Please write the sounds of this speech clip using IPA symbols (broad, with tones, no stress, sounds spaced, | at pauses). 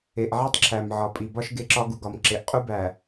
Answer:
e˨ ʔ ʕ e˦ tˤ ǁʰ æ˨ m ʕ ɒ˨ pʼ i˨ b ɒ˦ ʃ ɡ e˦ ǁ ɒ˦ ɡ u˨ ɡ ɒ˨ m ǁ e˨ ʔ qʼ u˦ b æ˨